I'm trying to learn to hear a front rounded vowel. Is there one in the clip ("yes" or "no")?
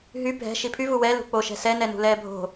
yes